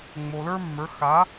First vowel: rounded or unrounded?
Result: rounded